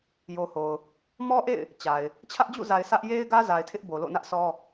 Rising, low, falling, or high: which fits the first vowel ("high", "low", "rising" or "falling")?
low